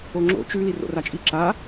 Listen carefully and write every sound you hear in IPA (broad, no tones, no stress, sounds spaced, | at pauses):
o ŋ͡ǁ o̰ t͡ʃ ʉ l i r o̰ r a t͡ʃʼ i ǁ a